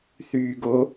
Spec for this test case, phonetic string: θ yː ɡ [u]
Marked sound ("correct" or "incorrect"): incorrect